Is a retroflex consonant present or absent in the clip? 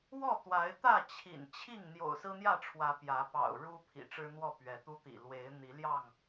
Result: present